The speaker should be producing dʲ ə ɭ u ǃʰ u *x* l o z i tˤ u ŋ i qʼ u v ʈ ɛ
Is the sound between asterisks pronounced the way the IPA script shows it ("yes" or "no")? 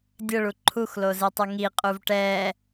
yes